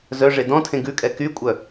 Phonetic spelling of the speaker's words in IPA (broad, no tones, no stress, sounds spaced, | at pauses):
z œ ʐ e d ɔ̃ tʰ ẽ ɡ ʉ kʼ ɛ k y kʷʼ œ